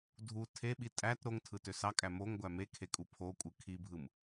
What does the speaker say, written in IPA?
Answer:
dʱ u tʰ e ɓ i tʼ æ t ɾ o ŋ tʰ ɯ t ø s ɑ kʼ æ m o ŋ ɡʷ æ m e kʰ e kʼ u pʰ o kʷʼ ɯ kʰ i bʱ ɯ m

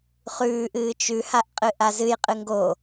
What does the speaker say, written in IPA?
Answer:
χ ʉː ʔ ɨː t͡ʃ ʉ h a ʔ qʼ ɨ ʔ a z ɨ j qʼ ɨ ŋ ɡ o

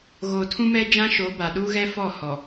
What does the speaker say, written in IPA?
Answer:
ɣ oː˨ tʰ ũ˦ m ɛ˦ d͡ʒ ã˦ ʃ o˨˦ b a˨ ɗ u˦ ɣ ɛ˦ f ɔ˦˨ h ɔ˨

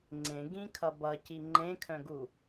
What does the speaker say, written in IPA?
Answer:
ŋ͡ǀ ẽ ɡ ĩ kʰ ʌ b ʌ c i ŋ͡ǃ ẽ kʰ œ̃ ɡ u

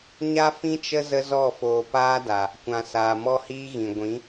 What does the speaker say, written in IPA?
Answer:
ɲ a˦ f ĩ˦ t͡ʃ ə˦ z ə˦ z ɔ˦˨ f oː˨ p aː˦ d a˨ | kʷ ã˨ s aː˨ m ɔ˦ h iː˦ ɣ ĩ˨ ɡʷ ĩ˨˦

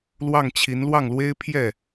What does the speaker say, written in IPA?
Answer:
l w ɑ˥˩ ŋ t͡ɕʰ i˧˥ n l w ɑ˥˩ ŋ l w e˥ ɪ̯ pʰ j ɛ˥˩

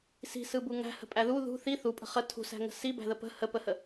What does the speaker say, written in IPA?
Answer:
s i̤ s ɯ b u ŋ æ̤ h ə̤ pʼ æ ð u ð ṳ θ i θ u pʼ ə̤ χ ə tʰ ṳ s æ̤ ŋ ə̤ s i b æ̤ ð ə p ə̤ h ə p ə h ə

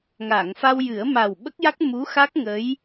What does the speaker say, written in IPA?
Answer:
ŋ aː˨˩˨ ŋ f a˧ w j ɨ˨˩˦ ə̯ m a˨˩ w ɓ ə˦˥ k̚ j a˦˥ k̚ m u˧˥ x a˦˥ k̚ ŋ ə˧˥ j

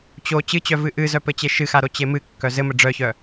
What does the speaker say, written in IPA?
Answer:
t͡ɕ o t͡ɕ ɨ t͡ɕ œ v ɨ ʔ ɨ z œ p ɘ t͡ɕ e ʃ ɨ x a ɾ o t͡ɕ e m ɨ kː œ z ɘ m ɘ ɖ͡ʐ œ ç œ

